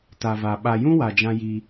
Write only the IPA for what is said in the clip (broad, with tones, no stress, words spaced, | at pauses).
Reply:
ta˨va˨ ɓa˨jũ˦wa˨ d͡ʒã˦ji˦